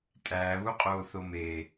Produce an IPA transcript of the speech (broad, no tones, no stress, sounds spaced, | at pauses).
tʼ æː β u qʼ oː θ o m eː